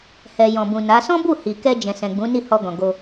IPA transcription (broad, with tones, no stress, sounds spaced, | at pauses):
h ɛ˨ j ɔ̃˨ b ũ˨ n a˨˦ s ɔ̃˦ b u˦˨ h i˨ k ɛ˧ d͡ʒ ɛ̃˨ s ɛ̃˨ ɡ͡b ũ˨˦ n i˦˨ h ɔ˧ ɡ ɔ̃˨ ɡ o˧